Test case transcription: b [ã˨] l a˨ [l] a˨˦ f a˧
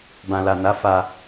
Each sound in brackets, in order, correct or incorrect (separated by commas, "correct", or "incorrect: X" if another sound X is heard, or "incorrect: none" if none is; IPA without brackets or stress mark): correct, incorrect: n